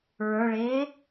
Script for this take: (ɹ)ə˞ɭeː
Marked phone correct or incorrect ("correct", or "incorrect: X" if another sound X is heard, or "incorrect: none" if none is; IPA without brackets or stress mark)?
correct